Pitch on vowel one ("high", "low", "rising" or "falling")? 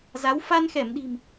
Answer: rising